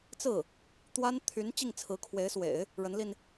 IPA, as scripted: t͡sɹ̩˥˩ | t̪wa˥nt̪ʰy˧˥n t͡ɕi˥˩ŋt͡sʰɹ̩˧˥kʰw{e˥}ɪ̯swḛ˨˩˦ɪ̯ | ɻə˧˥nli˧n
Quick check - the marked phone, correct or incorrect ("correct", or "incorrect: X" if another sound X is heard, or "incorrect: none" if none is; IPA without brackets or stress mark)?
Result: incorrect: e˧˥